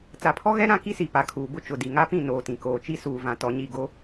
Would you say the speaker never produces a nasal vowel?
no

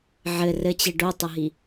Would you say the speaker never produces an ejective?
yes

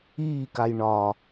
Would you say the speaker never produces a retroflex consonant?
no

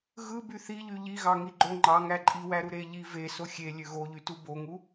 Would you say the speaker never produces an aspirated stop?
yes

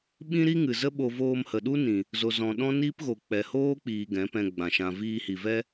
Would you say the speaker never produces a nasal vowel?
no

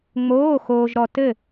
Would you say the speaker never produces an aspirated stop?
yes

